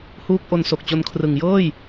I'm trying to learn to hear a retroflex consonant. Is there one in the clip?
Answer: no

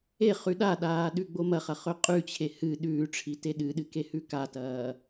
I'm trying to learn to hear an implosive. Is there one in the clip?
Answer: yes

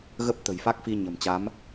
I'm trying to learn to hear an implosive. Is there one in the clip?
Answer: no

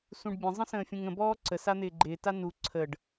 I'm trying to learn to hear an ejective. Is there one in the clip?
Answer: no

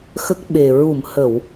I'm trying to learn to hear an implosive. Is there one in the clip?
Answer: yes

